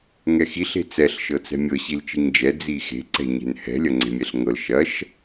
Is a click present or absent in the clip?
present